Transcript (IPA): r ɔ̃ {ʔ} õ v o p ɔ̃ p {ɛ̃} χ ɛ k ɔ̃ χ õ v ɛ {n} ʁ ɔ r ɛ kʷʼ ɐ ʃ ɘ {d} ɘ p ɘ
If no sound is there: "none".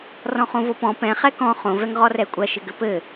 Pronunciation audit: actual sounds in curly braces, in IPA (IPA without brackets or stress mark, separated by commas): χ, ɛ̃, ŋ, ɡ